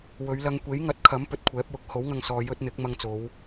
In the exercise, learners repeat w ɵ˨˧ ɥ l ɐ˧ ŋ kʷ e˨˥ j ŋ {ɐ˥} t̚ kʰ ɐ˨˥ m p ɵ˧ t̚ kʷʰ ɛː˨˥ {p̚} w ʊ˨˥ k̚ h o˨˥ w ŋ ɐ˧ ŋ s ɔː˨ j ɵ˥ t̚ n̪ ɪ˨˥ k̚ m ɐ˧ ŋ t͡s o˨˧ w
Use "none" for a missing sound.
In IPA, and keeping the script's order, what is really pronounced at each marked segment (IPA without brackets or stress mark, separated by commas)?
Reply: ɐ˨˥, p̚